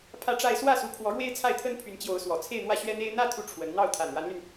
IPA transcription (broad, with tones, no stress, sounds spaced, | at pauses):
pʰ ä˥˧ ʈ͡ʂ a˥˧ ɪ̯ s w ä˥˩ s u˧˥ kʰ w ɔ˧˥ ɻ w e˥ ɪ̯ t͡sʰ a˥˩ ɪ̯ t̪ʰ ə˥ n pʰ y˧˥ n t͡ɕ j o˧˥ ʊ̯ s w ɔ˨˩ t͡sʰ e˥˧ ɪ̯ n̪ w ä˥˩ ɕ ɥ ɛ˥ n̪ e˥ ɪ̯ n̪ ä˥ t̪ʰ u˧˥ ʈ͡ʂʰ w ə˧˥ n n̪ ɑ˥˩ ʊ̯ t̪ʰ a˨˩ n ɻ a˧˥ n l y˧ n